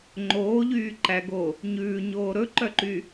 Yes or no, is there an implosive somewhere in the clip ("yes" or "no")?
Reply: no